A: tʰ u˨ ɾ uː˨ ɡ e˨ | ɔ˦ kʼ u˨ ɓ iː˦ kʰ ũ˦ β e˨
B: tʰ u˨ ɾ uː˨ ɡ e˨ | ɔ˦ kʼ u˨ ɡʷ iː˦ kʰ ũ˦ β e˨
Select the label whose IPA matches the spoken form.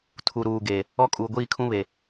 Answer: B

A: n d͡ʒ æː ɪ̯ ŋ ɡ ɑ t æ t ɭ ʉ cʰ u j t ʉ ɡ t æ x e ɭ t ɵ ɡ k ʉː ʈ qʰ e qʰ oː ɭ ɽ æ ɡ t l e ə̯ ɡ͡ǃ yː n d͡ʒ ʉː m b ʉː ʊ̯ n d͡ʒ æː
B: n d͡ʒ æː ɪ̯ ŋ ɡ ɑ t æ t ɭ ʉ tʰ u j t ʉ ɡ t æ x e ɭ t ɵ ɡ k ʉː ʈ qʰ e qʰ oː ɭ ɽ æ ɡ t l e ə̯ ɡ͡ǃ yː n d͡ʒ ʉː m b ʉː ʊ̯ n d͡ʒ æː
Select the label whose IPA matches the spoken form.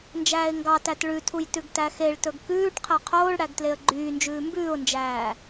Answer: B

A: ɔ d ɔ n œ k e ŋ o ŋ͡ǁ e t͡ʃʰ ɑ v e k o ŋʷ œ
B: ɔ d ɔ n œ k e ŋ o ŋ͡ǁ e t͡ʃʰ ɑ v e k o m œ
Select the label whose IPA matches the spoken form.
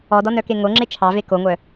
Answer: A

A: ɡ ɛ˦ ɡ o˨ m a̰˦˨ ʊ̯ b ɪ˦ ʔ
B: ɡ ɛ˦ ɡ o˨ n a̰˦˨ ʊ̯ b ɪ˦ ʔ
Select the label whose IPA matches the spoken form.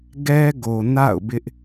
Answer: B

